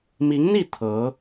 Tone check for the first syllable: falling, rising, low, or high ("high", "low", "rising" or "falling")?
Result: rising